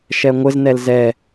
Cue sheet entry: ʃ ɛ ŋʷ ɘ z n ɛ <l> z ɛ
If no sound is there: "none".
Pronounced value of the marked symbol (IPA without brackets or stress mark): l